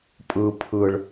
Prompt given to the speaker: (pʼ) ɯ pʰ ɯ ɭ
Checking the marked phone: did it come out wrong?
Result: no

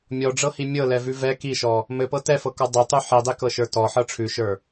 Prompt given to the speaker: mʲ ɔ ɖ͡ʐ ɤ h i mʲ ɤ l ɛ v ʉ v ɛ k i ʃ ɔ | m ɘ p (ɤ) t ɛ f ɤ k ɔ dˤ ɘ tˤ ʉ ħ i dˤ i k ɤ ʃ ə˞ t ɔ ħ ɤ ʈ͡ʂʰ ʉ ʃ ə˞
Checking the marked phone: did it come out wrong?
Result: no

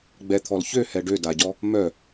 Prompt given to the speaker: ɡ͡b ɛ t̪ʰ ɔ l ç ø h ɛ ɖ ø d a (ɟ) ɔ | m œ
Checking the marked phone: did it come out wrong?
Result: no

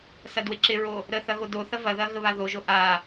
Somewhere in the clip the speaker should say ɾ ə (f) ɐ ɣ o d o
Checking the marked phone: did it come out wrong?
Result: yes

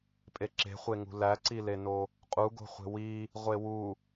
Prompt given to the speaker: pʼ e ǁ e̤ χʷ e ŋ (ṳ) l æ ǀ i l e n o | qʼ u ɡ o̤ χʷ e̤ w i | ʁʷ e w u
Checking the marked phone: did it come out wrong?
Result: no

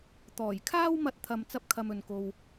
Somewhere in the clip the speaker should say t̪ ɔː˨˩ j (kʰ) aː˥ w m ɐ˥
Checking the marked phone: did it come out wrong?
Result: no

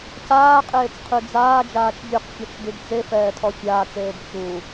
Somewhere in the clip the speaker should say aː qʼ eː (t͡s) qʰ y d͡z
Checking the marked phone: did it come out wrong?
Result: no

